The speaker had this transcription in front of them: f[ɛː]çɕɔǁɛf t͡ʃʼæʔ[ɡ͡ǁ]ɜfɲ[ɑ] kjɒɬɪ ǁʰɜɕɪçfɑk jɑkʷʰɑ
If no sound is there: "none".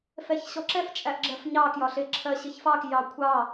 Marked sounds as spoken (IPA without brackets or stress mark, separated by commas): ɛ, ɡ͡ǁ, ɑ